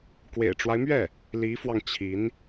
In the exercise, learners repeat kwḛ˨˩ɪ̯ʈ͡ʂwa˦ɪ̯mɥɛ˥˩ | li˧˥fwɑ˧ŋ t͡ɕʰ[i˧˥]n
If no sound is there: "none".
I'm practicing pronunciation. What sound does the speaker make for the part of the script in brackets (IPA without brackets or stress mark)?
i˧˥